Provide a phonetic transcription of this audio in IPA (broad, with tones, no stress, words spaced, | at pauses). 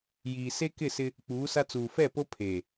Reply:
jiː˨se˦ kɪ˦˨sɪ˦ | k͡puː˨˦sa˦ t͡suː˨fɛ˦˨ po˦ pʰeː˨